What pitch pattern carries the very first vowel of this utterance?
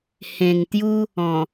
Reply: low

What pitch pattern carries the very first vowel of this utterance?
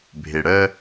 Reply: low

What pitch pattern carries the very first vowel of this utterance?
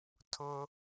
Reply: high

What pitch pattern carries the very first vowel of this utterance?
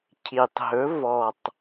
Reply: low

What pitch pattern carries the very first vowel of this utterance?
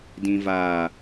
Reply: low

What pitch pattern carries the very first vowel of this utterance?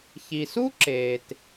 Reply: low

